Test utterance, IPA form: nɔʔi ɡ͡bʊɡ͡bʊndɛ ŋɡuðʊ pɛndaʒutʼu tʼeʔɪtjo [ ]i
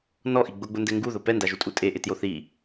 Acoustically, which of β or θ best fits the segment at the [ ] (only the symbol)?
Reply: θ